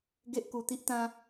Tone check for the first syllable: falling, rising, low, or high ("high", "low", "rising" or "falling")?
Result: high